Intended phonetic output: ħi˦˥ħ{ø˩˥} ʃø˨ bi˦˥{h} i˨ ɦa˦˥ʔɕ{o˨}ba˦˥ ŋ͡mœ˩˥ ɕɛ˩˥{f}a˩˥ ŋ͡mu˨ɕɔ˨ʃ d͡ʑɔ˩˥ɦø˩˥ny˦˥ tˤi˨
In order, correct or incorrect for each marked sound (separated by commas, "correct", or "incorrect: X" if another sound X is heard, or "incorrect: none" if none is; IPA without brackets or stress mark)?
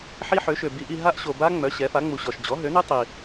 correct, incorrect: ʔ, correct, correct